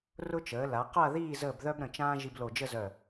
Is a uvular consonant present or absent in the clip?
present